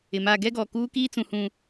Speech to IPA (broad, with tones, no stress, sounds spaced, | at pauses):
ɪ˨ m a˦˨ ɡ ɛ˦ ɡ ɔ˨ k uː˦ k iː˦ t͡s ũ˨ h ũ˨